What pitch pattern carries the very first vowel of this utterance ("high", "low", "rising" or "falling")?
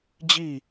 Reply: falling